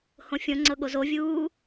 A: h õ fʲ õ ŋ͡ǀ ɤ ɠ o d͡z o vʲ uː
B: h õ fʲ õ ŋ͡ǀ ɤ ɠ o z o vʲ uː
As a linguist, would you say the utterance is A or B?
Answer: B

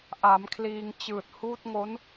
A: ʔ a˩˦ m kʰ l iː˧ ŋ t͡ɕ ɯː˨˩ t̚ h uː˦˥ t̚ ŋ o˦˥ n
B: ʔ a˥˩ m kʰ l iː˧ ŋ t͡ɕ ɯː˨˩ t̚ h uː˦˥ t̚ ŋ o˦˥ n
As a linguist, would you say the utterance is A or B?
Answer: A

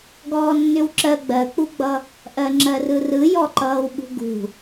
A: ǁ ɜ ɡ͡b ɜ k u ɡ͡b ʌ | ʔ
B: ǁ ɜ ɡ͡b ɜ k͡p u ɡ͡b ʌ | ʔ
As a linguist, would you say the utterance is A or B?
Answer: B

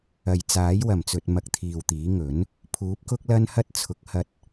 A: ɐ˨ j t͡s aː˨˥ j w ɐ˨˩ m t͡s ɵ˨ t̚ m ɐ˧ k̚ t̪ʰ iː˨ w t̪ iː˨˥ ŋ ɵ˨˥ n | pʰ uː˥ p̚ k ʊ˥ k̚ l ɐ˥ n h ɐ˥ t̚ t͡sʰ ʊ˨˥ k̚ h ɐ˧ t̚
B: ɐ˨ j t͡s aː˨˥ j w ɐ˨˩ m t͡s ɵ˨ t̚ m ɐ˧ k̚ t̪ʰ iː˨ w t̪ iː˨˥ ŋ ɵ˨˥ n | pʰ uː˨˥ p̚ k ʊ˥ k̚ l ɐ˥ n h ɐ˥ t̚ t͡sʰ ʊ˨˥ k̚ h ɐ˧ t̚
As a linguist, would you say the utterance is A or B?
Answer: B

